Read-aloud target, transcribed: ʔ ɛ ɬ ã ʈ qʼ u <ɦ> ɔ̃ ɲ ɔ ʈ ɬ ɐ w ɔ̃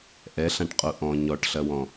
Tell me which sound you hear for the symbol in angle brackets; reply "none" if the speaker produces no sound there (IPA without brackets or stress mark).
ʔ